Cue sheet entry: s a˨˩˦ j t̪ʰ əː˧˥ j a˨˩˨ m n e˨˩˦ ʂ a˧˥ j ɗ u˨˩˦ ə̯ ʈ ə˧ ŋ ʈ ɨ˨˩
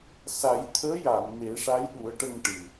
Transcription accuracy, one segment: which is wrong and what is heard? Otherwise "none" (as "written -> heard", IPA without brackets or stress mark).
none